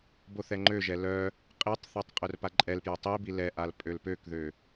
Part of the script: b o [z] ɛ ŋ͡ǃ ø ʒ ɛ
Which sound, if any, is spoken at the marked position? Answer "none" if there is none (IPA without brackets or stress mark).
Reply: θ